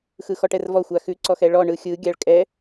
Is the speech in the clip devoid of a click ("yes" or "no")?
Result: no